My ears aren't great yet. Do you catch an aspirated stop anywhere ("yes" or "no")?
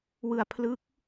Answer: yes